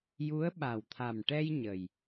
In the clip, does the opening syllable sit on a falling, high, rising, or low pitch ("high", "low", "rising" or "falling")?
rising